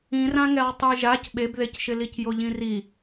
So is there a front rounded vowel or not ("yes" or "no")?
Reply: no